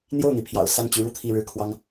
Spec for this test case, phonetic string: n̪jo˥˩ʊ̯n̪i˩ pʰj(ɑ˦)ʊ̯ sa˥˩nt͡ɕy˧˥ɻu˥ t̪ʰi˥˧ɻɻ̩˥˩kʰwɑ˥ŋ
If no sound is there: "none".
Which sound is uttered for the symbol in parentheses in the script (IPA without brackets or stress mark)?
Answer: ɑ̰˨˩